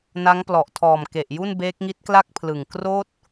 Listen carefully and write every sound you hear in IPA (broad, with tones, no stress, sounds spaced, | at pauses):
n a˦˥ ŋ p l ɔ˨˩ ʔ tʰ ɔː˨˩ m k e˨˩ ʔ j u˥˩ n b eː˦˥ k̚ ŋ i˦˥ t̚ k l a˥˩ k̚ pʰ l ɯ˨˩ ŋ k r oː˥˩ t̚